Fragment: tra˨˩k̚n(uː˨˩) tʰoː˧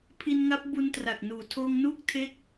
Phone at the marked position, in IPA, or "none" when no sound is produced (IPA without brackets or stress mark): uː˨˩